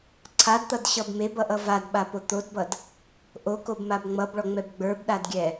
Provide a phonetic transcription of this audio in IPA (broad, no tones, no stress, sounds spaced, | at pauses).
ǀʰ a d t̪ ʌ d ɕ ʌ b m e b ʌ ʔ ʌ v a d ɓ a p o t̪ o d b ʌ d | ʔ o k o b m a b ŋ͡m ʌ b ɭ ɔ ŋ͡m ɛ b ɡ͡b ə˞ b ɗ a d ɡʲ ɛ